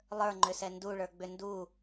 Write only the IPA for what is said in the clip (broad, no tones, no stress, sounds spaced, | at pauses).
lˠ ə˞ ŋ͡ǃ ʏ s ɛ n d u ɭ ə˞ ɡ͡b ʏ n d u